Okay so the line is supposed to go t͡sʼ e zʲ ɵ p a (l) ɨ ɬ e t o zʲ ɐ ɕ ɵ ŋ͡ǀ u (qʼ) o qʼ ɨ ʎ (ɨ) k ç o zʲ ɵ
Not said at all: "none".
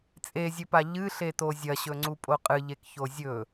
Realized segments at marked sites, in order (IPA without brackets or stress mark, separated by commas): ʎ, pʼ, e